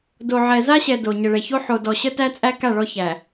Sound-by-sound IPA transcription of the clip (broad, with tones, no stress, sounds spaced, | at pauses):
d o˨ ʕ ɛ˨ z a˦ ɕ ɛ˨ d o˨ ɲ ə˨ ɭ ɛ˨ ç o˦ ħ o˨ d ɔ˨ ɕ ə˦ t æ˦ t͡sʼ æ˦ k a˦˨ ɭ ɔ˦ ç æ˨